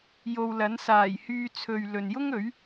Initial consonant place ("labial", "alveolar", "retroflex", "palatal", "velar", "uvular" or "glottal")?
palatal